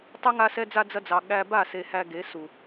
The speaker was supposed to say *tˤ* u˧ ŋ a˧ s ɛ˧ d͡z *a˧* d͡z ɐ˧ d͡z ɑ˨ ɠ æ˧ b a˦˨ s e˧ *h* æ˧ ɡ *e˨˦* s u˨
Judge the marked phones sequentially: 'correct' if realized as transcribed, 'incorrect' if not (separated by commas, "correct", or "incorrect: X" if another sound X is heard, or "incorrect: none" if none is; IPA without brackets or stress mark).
correct, correct, correct, correct